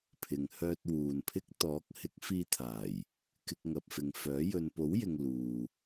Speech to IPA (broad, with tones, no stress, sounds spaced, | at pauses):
pʰ ɪ˨ ŋ h œː˧ t̚ w uː˨ n pʰ ɪ˥ k̚ t̪ ɔː˨˥ k̚ h ɪ˨˥ k̚ f iː˧ t̪ʰ aː˨˩ j | k ɪ˧ k̚ ŋ ɐ˨ p̚ f ɪ˨ ŋ f œː˨˥ j ɵ˨ n p o˨˥ w j ɪ˨ ŋ l uː˨